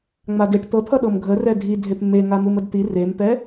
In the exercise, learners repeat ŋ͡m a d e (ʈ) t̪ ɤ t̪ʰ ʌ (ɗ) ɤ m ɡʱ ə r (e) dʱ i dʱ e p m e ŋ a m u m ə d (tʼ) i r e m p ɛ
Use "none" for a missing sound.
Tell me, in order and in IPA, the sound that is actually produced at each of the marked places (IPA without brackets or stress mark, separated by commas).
ʈ, ɗ, ɛ, t̪